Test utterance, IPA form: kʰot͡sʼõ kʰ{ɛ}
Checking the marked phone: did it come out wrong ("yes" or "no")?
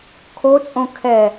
no